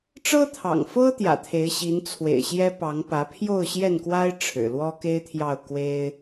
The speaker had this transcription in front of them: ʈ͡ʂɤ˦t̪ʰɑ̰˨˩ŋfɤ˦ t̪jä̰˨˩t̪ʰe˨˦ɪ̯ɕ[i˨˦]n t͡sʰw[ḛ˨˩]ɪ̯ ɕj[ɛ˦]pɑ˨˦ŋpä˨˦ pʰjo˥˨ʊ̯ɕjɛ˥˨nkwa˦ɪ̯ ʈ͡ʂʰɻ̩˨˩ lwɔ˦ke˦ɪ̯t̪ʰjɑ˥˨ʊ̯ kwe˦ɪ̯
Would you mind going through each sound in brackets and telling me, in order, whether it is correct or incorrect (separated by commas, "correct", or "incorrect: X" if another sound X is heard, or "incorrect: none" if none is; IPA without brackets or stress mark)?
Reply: correct, correct, correct